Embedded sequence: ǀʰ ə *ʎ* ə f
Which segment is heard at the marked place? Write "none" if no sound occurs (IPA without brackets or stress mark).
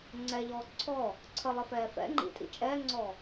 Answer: lˠ